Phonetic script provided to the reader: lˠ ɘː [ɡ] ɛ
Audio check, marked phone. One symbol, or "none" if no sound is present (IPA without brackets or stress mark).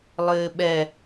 ɓ